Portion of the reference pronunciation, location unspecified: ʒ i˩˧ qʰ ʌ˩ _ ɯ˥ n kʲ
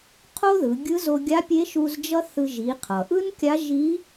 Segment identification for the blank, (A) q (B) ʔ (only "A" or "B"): B